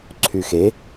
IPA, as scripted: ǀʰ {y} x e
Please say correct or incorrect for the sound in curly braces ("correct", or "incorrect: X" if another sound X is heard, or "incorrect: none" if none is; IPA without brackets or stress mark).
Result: correct